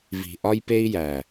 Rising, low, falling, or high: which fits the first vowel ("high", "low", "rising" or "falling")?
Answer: low